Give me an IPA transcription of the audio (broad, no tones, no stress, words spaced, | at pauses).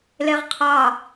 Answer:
leʁqʰɑ